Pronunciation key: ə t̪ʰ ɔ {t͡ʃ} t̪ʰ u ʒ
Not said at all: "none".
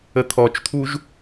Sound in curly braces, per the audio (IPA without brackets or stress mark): t͡ʃ